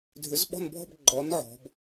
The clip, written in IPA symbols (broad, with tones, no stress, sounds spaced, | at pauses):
dʱ ʏ˨˥ z ɓ ɔ̤˥˧ n bʱ ɔ̤˥˧ b ɡ͡ǃ ɔ˨˥ n ʕ ɔ̤˩˧ b